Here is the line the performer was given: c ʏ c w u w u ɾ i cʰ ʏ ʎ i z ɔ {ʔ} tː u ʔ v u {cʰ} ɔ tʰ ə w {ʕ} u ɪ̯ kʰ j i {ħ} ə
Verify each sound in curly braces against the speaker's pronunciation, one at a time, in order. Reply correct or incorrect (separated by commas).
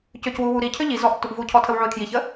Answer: correct, correct, correct, incorrect